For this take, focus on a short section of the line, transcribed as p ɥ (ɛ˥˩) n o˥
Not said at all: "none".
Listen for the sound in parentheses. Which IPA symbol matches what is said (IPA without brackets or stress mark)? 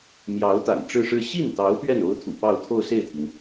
ɛ˥˩